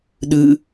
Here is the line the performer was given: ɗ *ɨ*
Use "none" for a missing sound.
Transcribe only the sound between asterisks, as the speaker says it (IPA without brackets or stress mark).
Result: ɨ